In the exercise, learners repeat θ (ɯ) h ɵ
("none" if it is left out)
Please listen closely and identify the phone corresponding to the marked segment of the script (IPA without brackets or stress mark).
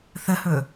ə